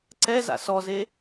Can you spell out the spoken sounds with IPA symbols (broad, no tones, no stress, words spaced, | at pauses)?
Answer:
ǀɛ za̰sɔze